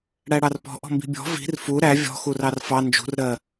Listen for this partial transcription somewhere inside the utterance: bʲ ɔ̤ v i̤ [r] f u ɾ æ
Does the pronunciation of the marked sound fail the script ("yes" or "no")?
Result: no